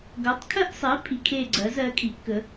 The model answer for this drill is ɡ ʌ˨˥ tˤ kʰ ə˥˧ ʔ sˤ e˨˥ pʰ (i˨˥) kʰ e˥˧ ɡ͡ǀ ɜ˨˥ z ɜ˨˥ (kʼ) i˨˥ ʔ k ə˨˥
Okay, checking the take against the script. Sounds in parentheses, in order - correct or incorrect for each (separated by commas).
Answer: correct, correct